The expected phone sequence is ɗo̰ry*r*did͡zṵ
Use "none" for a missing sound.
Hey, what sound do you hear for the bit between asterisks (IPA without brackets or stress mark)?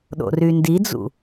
n